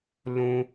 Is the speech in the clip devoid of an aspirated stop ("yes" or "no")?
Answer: yes